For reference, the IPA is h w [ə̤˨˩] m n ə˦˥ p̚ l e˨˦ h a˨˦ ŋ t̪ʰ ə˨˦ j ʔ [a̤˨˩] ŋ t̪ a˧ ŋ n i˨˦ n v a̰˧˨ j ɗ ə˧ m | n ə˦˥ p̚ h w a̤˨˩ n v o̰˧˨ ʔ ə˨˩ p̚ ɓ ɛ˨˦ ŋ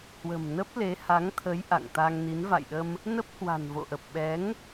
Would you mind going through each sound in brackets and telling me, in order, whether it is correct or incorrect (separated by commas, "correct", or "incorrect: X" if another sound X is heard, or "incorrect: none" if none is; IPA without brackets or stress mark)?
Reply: correct, incorrect: a̰˧˨